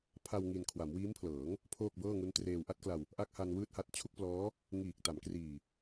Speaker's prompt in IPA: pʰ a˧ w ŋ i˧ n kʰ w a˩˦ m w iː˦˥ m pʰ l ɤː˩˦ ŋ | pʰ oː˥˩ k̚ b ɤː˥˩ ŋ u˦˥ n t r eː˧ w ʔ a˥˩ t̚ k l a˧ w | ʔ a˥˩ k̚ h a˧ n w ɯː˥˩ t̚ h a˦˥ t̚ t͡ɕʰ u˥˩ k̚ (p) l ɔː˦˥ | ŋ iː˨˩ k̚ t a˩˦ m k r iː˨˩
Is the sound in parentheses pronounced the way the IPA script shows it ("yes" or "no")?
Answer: yes